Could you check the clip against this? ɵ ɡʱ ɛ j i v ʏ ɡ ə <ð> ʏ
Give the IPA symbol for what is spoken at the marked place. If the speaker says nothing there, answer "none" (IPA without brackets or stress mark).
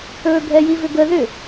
ð